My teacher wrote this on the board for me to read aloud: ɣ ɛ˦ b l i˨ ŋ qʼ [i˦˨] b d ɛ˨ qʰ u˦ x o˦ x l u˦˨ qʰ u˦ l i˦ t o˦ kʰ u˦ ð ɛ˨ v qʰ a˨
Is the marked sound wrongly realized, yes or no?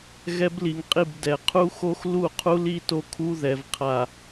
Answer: no